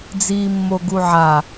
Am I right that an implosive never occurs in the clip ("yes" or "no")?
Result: yes